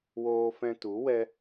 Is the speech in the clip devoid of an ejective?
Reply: yes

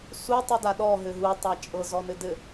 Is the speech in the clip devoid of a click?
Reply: yes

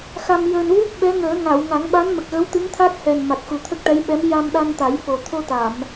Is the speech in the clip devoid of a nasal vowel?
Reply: yes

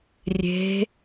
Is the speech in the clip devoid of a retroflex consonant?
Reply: yes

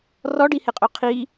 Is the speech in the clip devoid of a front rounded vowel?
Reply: yes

